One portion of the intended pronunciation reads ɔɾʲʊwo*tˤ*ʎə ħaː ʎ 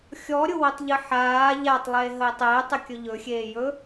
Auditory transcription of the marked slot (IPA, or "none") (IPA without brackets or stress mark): tˤ